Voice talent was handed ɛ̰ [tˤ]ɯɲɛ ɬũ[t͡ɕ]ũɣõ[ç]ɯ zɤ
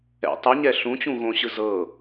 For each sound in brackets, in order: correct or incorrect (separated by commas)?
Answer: correct, correct, incorrect